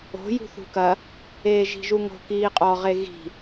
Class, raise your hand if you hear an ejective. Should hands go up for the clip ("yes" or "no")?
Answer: yes